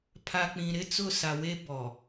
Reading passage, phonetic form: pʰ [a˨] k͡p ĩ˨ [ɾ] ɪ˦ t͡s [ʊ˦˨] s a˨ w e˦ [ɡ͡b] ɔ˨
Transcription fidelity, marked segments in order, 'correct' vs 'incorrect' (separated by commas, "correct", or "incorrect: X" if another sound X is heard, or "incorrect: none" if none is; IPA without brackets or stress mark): correct, correct, correct, incorrect: b